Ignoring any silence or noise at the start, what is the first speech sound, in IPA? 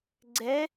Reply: ɡ͡ǀ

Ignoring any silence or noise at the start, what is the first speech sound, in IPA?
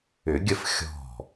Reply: ʏ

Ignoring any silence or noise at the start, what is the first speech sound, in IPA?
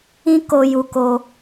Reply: ĩ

